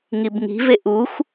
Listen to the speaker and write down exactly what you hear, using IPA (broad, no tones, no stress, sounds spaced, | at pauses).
ŋ i b ŋ i̤ v e ʔ u xʷ